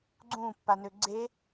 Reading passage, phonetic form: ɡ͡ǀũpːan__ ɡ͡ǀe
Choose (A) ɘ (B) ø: B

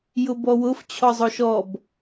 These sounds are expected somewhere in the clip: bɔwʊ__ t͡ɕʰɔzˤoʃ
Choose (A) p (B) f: B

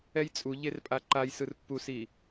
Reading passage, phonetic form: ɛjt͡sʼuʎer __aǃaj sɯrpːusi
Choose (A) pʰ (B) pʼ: B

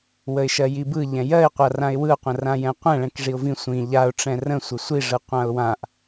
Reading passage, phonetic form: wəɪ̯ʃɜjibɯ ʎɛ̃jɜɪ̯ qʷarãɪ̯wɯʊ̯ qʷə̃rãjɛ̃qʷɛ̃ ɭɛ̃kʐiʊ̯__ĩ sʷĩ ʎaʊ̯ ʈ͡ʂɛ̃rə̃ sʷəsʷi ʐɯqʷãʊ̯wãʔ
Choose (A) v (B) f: A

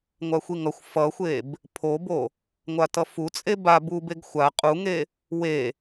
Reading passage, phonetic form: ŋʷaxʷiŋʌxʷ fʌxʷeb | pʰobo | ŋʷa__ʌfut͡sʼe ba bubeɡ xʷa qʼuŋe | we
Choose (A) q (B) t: B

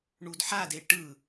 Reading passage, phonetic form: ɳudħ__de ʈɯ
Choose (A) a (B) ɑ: A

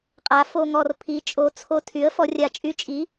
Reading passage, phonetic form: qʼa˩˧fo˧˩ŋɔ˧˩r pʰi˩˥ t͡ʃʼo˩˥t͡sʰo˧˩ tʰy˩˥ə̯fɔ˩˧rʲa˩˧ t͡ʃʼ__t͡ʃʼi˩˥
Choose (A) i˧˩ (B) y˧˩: B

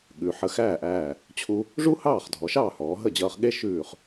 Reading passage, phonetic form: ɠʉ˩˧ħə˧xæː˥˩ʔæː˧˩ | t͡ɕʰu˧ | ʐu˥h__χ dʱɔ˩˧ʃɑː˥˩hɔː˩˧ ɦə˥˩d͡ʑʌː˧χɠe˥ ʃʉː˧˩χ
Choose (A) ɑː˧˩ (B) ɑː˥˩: B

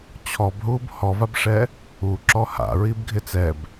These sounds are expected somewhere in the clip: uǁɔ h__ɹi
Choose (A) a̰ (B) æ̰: A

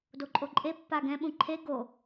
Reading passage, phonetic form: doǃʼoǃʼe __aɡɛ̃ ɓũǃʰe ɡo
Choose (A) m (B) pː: B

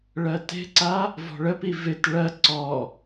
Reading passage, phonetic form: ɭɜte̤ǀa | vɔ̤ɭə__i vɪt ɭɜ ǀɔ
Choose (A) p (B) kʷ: A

